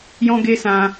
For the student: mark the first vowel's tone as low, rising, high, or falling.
high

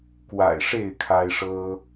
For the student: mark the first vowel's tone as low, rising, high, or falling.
low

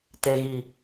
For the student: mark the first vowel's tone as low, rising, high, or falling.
low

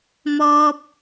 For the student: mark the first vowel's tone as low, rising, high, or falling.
high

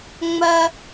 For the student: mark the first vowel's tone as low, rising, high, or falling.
high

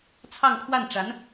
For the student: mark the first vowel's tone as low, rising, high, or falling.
falling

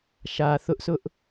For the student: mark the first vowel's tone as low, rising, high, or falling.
low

